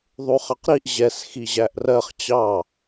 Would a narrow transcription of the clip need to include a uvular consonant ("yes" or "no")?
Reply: yes